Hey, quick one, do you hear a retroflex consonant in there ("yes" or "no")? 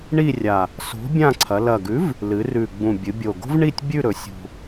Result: yes